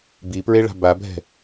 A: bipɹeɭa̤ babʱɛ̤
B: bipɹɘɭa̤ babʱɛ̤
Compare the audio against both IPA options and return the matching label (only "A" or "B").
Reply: A